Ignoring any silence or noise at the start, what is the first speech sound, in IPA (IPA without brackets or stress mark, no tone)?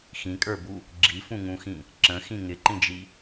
x